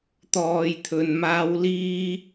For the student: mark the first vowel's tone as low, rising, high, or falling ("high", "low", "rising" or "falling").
low